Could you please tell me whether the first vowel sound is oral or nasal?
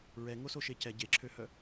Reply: oral